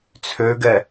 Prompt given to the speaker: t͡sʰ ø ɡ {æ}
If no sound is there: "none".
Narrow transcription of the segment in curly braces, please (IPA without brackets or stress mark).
ɛ